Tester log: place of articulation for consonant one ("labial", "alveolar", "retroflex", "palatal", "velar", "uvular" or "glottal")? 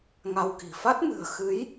velar